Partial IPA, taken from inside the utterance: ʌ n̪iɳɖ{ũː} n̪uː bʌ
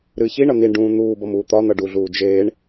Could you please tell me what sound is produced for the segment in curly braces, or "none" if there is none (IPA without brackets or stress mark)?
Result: ũː